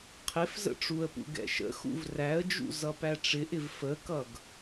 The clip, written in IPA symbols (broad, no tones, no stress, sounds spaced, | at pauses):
qʰ ɪ f z ə̰ ʈ͡ʂ u ə̯ p ṵ ɡ ɛ̰ ʃ ə̰ x ṵ v r æ ə̯ d͡ʒ ṵ z ʌ p æ ʈ͡ʂ ɪ ʔ ɪ v f ə k ʌ ɡ